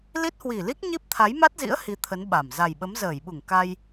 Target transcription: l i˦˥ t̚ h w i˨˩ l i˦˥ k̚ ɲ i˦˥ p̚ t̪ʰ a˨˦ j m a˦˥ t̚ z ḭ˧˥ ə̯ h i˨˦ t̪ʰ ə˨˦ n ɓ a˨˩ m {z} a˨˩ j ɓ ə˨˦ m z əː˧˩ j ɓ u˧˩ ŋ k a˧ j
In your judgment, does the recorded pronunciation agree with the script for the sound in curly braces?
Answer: yes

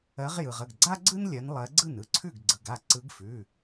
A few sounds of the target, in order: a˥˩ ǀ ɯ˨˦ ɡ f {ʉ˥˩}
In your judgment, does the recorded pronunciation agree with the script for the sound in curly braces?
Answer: no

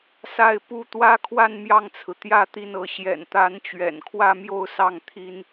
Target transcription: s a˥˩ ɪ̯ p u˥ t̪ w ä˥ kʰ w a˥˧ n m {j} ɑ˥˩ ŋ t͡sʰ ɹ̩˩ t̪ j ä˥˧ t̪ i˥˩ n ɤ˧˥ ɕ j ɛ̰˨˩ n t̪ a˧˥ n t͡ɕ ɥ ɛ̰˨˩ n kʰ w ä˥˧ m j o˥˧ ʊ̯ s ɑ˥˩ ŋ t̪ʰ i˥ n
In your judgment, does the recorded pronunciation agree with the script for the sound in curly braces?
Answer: yes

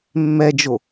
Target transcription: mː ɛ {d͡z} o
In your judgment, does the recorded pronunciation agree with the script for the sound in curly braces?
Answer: no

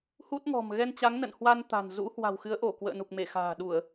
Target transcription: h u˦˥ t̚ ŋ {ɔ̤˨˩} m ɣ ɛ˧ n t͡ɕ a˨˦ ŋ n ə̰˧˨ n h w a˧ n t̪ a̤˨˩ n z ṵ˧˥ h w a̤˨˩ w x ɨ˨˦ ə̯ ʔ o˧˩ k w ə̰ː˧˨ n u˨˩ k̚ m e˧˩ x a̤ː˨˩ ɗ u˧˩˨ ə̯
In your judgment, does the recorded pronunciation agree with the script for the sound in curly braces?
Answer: yes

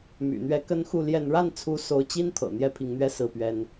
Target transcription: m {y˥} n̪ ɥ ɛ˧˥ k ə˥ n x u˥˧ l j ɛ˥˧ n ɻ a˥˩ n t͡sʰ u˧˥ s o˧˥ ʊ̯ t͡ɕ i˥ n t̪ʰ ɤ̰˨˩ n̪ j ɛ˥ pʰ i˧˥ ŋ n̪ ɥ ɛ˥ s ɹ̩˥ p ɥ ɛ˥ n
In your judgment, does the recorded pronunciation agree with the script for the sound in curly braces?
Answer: no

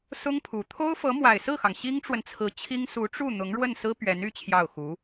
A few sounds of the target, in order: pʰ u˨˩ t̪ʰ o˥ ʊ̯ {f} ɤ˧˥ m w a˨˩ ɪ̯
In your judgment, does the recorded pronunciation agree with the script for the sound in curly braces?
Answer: yes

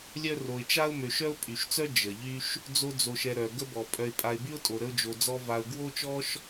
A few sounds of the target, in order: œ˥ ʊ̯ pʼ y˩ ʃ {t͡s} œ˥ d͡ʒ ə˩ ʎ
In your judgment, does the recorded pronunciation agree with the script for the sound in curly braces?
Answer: yes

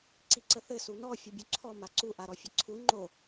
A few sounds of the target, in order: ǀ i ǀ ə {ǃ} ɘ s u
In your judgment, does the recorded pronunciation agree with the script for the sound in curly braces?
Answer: no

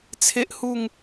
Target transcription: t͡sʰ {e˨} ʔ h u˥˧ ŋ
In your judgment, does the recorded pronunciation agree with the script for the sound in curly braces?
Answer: no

